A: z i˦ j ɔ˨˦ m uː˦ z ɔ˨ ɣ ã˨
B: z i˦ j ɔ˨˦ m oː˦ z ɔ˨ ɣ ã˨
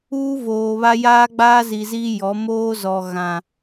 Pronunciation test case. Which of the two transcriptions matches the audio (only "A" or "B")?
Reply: B